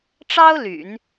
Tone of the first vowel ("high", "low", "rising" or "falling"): high